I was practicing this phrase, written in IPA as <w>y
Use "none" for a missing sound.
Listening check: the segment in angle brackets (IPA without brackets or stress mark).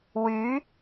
w